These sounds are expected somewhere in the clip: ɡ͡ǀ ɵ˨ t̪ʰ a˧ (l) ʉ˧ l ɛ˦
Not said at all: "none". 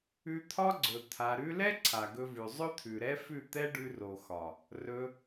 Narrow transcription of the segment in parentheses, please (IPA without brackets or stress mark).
ɾ